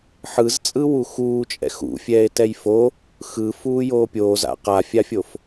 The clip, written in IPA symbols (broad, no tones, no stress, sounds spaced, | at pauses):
ħ ɯ z t͡sʼ ɯ w u x uː t͡ʃʼ ɛ̰ x ṵ fʲ ɛː e̯ t ɛ j f o | x ɯ f uː j oː pʲ oː z a̰ q a fʲ a fʲ o f